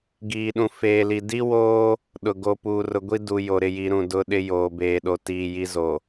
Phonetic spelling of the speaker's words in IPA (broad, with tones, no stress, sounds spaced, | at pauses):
ɡ iː˨ ɗ ũ˨ f eː˨ l i˨ d i˦ w oː˦ | ɗ ʊ˨ ɡ o˨ p uː˨ r ʊ˨ ɡʷ i˦ d u˨ j o˨ ɾ ɪ˨ j i˨˦ ɾ ũ˨ d ʊ˨˦ ɗ ɪ˦ j oː˨ b eː˨ ɗ o˨ t iː˨ j i˦ z o˨